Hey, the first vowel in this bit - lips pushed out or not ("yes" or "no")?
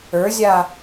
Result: no